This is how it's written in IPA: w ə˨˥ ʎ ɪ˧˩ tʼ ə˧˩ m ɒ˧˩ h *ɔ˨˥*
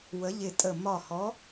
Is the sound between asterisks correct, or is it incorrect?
correct